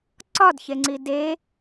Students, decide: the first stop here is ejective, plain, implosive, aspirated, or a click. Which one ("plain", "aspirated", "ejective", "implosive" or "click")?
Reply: click